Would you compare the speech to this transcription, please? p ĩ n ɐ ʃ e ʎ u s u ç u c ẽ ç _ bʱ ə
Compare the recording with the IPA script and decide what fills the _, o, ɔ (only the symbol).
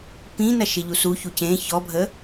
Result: ɔ